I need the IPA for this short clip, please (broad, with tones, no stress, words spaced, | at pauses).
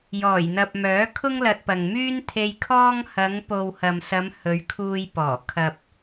jɔː˨˩jn̪ɐ˨p̚ mœː˨˥kʰʊ˥ŋlɐ˧t̚pɐ˨ŋ myː˥nt̪ʰe˧j kʰɔː˥ŋ hɐ˨˧ŋ po˨whɐ˨msɐ˨˧m hɵ˨˧ɥkʰuː˧j pɔː˨˩ kʰɐ˨p̚